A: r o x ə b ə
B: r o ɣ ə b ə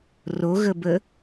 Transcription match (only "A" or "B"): B